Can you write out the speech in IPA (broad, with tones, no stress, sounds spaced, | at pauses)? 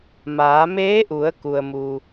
m aː˩˧ m eː˧˥ ʔ u˩˧ ə̯ k u˩ ə̯ m u˩